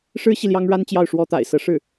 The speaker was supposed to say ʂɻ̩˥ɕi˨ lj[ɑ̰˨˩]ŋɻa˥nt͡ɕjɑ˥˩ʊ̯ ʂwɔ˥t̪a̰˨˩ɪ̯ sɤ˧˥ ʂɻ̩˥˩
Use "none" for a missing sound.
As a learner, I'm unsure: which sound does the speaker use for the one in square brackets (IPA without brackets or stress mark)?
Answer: ɑ˥